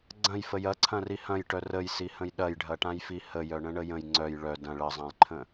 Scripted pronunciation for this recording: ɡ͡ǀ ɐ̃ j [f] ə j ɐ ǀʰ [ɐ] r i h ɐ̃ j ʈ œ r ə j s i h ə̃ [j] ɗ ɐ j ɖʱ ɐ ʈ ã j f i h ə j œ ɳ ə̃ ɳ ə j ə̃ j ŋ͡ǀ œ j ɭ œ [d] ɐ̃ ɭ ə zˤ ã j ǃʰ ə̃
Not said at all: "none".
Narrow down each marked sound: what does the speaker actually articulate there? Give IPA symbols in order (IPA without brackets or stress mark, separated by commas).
f, ɐ̃, j, d